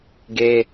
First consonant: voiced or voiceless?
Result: voiced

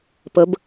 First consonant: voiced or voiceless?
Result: voiceless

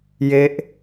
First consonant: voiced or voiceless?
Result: voiced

